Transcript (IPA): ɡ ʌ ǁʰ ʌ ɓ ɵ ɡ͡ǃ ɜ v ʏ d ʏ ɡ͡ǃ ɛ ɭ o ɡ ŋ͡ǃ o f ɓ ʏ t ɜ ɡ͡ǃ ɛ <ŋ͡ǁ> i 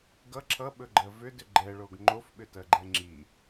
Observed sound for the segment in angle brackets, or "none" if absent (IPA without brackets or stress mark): ŋ͡ǁ